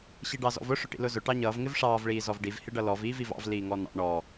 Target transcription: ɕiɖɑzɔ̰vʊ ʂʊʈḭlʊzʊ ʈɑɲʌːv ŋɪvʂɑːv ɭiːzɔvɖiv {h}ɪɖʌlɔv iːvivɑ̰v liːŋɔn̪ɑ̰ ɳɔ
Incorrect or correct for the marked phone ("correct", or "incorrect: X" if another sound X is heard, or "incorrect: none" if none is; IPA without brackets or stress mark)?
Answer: correct